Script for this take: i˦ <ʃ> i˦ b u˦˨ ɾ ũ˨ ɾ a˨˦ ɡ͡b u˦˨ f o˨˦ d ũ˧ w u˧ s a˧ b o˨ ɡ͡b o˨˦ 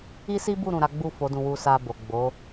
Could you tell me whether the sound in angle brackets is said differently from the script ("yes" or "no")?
yes